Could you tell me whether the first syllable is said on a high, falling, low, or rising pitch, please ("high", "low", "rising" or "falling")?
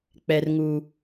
low